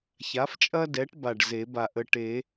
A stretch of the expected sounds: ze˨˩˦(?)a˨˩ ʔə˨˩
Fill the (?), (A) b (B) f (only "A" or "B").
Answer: A